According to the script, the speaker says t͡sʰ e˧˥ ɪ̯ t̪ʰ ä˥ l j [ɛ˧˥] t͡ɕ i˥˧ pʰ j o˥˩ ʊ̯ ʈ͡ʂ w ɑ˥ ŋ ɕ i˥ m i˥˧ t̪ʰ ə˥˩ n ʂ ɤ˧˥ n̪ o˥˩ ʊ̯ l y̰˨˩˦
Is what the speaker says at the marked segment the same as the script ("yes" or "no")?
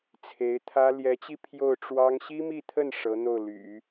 yes